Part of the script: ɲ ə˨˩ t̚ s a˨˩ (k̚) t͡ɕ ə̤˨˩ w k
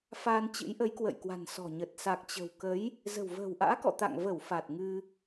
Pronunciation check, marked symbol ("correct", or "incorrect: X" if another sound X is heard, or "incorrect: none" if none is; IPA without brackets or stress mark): correct